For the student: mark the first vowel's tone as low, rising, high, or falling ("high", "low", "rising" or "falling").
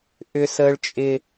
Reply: high